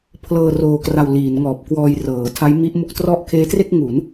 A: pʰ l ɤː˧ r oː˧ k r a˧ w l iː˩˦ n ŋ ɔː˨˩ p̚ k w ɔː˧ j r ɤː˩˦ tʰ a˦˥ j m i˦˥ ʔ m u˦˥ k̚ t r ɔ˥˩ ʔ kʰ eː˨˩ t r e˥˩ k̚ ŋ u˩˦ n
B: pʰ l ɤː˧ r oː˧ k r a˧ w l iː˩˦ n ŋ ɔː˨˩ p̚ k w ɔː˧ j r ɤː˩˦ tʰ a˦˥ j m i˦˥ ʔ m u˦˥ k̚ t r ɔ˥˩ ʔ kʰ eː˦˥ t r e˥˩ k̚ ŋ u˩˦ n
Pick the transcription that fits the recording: B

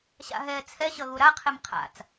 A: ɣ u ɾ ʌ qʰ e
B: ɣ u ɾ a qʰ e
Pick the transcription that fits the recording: B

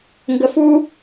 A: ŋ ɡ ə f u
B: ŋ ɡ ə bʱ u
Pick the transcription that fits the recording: A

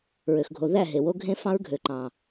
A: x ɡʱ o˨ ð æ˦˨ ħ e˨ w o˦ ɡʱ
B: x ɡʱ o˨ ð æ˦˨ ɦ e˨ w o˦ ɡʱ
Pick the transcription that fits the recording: B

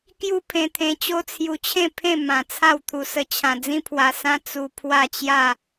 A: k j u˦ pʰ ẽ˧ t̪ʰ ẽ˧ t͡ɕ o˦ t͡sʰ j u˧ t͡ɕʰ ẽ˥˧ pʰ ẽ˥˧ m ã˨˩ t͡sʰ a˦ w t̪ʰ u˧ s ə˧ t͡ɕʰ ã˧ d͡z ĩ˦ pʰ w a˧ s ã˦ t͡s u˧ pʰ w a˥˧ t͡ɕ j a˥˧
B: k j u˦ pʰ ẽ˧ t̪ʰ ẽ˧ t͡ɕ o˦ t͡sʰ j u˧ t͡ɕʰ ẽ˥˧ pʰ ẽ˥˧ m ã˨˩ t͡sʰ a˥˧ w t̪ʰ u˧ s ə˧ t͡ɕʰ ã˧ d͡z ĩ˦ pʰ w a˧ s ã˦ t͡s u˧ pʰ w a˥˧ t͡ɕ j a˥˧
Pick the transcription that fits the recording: B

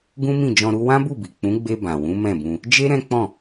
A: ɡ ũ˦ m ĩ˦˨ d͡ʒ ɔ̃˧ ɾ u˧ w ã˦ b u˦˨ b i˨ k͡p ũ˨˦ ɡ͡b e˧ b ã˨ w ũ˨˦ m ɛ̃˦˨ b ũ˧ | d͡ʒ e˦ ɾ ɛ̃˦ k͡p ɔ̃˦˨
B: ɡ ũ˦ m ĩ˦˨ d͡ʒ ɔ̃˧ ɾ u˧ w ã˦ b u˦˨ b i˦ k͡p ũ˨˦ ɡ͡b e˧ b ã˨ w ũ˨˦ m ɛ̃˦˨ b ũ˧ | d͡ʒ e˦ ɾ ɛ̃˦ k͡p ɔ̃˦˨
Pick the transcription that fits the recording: A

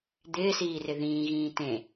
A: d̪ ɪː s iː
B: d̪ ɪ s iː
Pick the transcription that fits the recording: A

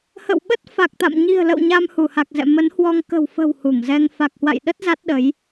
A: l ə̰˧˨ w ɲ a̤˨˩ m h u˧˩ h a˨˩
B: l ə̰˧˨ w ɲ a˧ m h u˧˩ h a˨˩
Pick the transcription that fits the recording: B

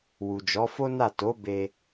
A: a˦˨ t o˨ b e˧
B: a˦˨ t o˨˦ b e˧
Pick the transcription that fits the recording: B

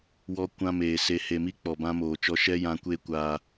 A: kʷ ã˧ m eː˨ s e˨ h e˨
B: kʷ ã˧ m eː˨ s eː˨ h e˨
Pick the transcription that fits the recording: A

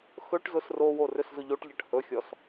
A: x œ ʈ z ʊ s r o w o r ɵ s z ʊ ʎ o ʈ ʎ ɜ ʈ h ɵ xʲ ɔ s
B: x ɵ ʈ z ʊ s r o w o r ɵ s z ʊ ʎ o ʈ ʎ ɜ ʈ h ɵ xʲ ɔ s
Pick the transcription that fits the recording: B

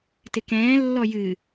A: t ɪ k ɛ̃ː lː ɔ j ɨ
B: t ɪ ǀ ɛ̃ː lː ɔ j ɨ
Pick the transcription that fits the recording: A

